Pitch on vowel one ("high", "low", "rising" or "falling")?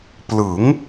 rising